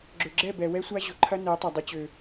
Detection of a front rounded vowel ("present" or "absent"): present